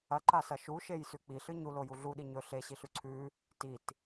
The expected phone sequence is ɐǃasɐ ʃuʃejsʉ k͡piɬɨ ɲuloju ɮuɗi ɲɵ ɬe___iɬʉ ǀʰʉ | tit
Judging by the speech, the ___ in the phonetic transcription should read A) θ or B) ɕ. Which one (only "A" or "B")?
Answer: B